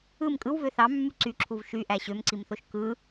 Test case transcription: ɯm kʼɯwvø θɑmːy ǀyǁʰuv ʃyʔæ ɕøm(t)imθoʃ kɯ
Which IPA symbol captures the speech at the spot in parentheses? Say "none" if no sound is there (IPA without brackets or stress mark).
ǀ